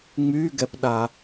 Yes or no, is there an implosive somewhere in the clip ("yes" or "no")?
yes